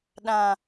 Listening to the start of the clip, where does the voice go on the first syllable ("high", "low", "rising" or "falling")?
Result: low